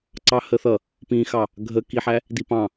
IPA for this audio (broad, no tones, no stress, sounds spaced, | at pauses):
ǀ ɑ h ə θ ʌ | p ĩ x ɑ | ɡʱ ə k i ħ æ | d i p ɑ̃